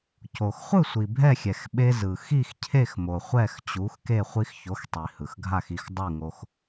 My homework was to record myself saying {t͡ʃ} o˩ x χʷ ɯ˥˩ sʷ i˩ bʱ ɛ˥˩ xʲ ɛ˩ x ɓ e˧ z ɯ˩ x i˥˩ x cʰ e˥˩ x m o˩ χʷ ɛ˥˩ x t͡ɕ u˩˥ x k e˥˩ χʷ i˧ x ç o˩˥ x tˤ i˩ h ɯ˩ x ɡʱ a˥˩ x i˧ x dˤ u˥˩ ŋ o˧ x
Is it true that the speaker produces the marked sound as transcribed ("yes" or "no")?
no